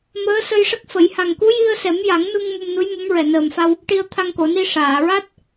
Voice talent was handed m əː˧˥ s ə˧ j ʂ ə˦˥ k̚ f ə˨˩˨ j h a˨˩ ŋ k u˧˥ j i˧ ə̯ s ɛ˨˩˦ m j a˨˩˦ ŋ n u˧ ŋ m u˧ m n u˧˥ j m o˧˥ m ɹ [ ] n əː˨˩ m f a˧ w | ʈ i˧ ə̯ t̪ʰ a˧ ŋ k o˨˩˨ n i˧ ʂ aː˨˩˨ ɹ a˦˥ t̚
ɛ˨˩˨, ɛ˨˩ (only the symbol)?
ɛ˨˩